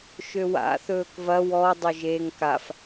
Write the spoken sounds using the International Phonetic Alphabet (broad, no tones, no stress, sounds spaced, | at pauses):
ʃ ø w a̰ θ ɵː k v ɐ w ɔ dˤ o ʒ eː ŋ k a f